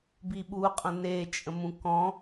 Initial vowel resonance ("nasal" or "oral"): oral